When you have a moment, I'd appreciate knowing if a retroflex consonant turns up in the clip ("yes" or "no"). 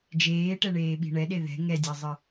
yes